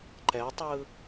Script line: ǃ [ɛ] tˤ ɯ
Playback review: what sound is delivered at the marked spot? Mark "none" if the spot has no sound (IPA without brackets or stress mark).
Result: ɛ